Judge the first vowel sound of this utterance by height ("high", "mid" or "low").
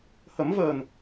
mid